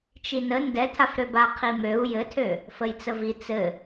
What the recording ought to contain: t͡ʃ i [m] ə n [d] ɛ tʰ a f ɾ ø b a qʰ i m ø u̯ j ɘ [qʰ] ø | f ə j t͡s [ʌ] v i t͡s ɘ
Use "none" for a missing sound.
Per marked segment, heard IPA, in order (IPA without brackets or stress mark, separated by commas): n, d, tʰ, ə